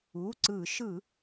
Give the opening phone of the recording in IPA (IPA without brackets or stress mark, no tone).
u